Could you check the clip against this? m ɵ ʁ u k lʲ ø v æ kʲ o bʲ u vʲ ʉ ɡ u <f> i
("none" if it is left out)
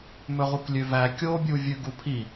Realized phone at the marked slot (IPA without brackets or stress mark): pʰ